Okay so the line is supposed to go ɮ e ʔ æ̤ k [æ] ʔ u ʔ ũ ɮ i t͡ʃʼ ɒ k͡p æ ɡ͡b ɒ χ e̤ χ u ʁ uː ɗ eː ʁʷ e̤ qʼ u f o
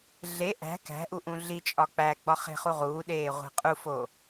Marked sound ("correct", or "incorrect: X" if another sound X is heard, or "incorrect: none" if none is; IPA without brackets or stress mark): incorrect: æ̤